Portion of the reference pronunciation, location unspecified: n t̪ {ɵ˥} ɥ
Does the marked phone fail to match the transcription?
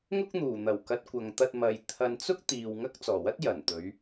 yes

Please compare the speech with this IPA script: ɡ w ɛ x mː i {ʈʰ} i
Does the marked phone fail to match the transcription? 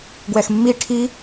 no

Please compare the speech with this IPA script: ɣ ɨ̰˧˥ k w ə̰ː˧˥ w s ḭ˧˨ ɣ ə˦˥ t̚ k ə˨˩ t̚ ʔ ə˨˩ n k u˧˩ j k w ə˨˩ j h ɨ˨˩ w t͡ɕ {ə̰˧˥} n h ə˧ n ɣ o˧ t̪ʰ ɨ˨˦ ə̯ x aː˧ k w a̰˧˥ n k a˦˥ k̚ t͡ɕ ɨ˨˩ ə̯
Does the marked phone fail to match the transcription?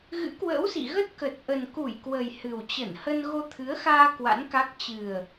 yes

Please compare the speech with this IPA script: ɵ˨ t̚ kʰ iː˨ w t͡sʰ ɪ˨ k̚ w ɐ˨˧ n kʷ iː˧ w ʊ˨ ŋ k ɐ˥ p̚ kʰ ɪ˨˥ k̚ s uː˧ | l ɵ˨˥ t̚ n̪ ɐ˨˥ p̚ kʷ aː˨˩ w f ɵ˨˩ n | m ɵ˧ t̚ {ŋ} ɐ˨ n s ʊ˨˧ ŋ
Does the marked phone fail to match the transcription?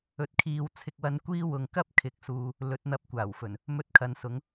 yes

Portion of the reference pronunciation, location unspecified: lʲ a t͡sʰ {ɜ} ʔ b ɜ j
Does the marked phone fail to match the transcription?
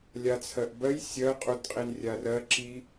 no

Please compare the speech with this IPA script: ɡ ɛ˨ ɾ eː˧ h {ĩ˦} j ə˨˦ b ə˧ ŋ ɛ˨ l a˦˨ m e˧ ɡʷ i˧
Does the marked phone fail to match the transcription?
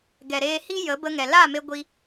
yes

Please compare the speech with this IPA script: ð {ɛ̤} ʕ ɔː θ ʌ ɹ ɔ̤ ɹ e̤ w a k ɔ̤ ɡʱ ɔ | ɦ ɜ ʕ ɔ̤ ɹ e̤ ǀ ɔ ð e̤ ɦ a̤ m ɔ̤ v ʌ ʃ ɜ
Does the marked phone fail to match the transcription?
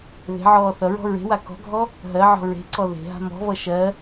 yes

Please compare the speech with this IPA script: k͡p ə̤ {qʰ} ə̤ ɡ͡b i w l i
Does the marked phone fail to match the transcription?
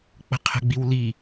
no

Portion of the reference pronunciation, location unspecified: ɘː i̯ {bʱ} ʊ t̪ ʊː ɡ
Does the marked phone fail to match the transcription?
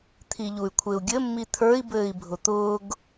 no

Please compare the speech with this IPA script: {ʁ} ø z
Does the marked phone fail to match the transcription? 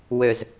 yes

